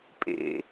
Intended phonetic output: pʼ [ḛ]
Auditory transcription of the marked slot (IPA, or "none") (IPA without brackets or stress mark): ḛ